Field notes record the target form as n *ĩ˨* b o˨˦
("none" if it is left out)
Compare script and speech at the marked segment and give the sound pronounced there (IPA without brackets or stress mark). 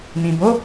ĩ˨